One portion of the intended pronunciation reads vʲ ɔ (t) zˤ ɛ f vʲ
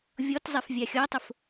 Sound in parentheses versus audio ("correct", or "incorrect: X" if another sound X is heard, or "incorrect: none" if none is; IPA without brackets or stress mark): correct